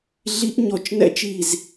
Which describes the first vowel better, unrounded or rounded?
unrounded